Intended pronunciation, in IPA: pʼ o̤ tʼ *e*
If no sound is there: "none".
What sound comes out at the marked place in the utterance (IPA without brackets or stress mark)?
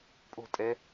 ɛ